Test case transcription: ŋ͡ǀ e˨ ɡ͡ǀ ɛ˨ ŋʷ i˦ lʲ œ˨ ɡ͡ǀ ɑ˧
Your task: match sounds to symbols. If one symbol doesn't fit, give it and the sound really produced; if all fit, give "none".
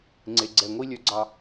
none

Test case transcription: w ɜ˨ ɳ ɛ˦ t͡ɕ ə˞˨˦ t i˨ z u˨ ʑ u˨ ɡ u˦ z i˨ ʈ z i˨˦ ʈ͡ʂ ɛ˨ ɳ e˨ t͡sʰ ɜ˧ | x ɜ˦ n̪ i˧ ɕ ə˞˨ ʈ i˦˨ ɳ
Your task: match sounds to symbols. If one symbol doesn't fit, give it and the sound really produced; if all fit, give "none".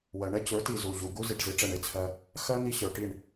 none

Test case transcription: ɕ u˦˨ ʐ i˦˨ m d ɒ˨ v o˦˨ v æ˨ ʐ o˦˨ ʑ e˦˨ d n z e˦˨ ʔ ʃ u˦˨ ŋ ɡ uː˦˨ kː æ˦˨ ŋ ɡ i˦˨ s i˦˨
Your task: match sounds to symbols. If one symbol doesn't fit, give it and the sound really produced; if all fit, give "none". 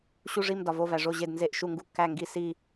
uː˦˨ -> u˦˨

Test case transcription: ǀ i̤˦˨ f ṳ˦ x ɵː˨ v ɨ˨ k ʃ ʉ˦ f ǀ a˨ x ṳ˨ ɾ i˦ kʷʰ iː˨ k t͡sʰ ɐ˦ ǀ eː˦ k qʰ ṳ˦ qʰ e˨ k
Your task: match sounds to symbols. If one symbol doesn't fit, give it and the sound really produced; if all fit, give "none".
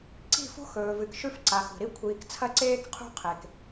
none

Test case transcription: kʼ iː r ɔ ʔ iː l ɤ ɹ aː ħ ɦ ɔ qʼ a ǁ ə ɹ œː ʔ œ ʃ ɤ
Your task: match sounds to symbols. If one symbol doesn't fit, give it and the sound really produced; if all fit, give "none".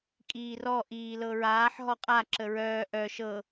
none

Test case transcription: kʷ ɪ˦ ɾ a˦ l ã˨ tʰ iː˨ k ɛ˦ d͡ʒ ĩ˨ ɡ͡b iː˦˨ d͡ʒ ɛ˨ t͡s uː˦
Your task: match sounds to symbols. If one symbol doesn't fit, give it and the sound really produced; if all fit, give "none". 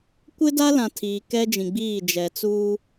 ɾ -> d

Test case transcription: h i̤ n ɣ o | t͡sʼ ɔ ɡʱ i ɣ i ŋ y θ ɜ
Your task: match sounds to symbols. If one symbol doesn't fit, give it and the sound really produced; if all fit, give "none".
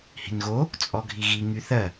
none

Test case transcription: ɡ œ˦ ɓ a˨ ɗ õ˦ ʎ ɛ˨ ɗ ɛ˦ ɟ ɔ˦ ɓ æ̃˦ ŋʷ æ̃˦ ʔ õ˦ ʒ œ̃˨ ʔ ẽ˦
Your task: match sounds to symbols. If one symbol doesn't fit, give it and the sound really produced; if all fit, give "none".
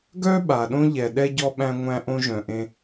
none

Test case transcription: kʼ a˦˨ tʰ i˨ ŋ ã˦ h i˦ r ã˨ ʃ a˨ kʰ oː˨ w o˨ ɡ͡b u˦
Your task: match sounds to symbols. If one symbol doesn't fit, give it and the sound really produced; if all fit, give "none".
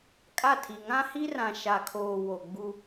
none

